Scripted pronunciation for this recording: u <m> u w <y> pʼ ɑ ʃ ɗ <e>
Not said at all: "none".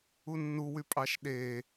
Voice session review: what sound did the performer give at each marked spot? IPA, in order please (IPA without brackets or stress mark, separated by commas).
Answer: nː, y, e